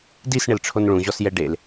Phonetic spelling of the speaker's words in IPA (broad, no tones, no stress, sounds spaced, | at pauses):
d i s ɳ ɪ l ʈ͡ʂʰ o n ɭ ũ ʑ ɔ s j ɛ ɖ e l